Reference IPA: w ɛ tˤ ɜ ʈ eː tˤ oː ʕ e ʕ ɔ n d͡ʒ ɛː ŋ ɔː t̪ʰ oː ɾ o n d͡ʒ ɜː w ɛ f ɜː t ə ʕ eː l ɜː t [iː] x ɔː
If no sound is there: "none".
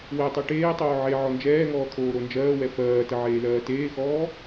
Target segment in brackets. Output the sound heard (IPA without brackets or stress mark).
eː